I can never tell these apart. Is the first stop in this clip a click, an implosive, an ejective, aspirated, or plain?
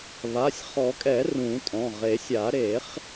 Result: ejective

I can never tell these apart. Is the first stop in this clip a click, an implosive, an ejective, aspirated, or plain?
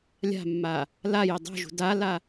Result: plain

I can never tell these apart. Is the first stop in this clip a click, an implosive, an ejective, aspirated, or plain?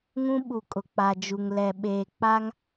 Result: implosive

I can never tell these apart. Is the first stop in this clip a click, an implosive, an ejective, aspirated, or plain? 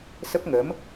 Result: plain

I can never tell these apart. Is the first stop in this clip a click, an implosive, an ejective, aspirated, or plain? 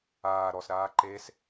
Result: click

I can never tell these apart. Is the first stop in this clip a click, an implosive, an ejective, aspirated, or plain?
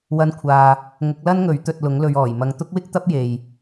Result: aspirated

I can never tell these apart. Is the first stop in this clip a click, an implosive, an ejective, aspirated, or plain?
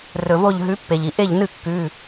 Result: plain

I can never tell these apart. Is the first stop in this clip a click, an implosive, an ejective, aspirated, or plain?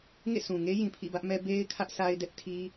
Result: aspirated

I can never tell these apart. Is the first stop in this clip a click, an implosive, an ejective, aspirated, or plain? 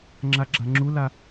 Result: click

